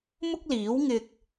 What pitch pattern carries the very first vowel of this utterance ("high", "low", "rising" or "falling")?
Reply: high